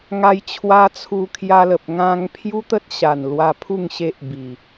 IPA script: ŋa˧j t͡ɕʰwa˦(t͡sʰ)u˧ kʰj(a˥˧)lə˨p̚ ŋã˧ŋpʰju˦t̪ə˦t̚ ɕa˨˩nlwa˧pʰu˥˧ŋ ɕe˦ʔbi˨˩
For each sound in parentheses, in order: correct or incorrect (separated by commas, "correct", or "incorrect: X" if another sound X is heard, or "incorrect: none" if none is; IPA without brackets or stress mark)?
correct, incorrect: a˧